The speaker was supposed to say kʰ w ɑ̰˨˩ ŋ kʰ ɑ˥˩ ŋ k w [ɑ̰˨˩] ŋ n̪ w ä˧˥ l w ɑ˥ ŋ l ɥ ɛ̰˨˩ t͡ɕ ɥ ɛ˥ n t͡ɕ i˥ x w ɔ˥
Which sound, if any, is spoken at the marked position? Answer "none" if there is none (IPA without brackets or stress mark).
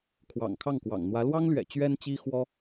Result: ɑ̰˨˩